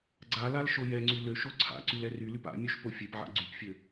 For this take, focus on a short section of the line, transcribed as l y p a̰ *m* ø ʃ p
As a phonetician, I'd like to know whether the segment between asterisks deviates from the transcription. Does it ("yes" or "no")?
yes